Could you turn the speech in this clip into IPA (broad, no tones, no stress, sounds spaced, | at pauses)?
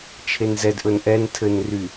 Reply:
t͡ʃʰ e n z ɛ d ʔ ɵ n ʔ ɛ n tʰ ɘ n r y